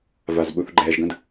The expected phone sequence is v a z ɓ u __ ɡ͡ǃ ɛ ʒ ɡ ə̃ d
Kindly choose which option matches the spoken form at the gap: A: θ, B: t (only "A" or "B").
A